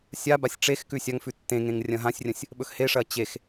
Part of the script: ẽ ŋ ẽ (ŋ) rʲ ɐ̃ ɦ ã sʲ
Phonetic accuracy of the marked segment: correct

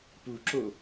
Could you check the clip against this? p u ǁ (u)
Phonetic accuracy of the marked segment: incorrect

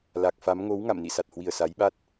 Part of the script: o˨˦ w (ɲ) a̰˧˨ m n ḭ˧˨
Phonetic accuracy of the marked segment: incorrect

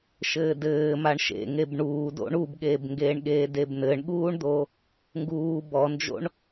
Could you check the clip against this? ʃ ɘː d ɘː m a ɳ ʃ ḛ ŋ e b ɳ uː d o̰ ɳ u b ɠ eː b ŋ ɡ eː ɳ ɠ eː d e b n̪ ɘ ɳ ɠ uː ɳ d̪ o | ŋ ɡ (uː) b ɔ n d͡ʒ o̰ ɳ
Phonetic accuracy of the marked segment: correct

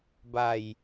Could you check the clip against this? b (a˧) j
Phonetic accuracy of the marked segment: incorrect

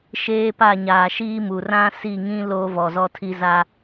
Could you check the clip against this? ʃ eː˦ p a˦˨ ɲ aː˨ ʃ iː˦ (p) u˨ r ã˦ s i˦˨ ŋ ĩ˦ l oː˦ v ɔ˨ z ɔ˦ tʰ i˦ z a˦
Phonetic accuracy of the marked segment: incorrect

